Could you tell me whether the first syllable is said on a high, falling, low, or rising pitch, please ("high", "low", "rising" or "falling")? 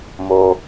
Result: low